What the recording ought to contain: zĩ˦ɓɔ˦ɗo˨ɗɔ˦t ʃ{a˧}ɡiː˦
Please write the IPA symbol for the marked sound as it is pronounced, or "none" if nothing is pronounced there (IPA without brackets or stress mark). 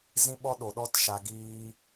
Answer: a˧